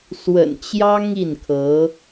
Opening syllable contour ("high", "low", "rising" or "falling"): low